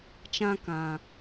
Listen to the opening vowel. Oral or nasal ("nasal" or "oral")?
nasal